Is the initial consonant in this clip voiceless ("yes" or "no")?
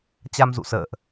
yes